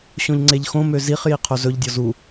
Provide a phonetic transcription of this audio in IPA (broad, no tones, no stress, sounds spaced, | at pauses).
ɕ õ ʎ ŋ͡ǀ e ʎ x õ m ø z i χ j i qʰ o z ɵ ʎ dʲ ɔ z u